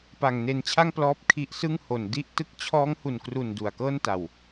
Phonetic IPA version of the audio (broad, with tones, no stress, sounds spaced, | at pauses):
p a˨˩ ŋ n e˧ n t͡ɕʰ a˥˩ ŋ p l ɔː˦˥ p̚ kʰ i˦˥ ʔ s ɯ˥˩ ŋ h o˨˩ n d i˥˩ ʔ t ɯ˦˥ k̚ t͡ɕʰ ɔː˦˥ ŋ h u˨˩ n k r u˨˩ n d u˨˩ a̯ k ɤː˥˩ n t a˨˩ w